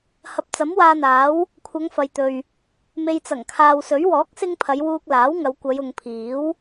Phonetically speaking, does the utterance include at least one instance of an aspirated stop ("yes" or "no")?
yes